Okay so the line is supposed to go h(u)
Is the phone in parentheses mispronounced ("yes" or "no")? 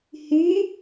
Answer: yes